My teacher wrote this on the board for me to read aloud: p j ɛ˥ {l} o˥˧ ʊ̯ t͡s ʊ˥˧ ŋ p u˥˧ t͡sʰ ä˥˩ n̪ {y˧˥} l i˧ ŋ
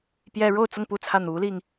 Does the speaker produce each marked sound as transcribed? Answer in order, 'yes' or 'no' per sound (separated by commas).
no, no